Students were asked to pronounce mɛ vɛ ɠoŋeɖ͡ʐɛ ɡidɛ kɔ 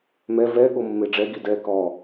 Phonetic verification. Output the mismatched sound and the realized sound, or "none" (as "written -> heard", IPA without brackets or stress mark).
ŋ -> mː